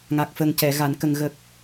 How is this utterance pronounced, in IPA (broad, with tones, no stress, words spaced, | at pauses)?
ŋa˨˩k̚fə˨˩ŋcɛ˨˩˨ ɣa˨˩˨nkə˨˩ŋ ɣə˨˩k̚